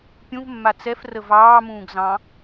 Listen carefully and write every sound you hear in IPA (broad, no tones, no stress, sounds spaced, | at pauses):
pʲ ũ v mː a t͡s ɛ f r ə v ɑː m ũː ɡ z ɑ̃